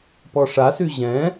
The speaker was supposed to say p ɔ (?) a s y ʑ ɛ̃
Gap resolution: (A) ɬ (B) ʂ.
B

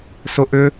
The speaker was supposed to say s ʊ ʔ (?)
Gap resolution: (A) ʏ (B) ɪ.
A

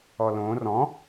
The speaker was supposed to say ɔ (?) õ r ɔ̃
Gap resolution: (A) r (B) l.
B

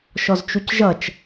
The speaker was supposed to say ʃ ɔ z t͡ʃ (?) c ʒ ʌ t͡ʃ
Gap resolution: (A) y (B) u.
B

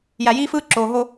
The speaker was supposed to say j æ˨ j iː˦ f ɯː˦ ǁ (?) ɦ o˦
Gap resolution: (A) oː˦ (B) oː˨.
B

